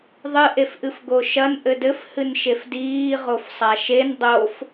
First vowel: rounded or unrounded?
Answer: unrounded